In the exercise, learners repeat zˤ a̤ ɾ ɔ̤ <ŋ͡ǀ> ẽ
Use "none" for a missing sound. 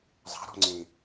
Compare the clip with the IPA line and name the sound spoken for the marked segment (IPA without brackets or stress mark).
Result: ŋ͡ǀ